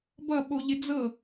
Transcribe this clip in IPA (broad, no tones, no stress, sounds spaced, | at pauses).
b ʌ ɓ o ʎ ɪ d͡z ɤ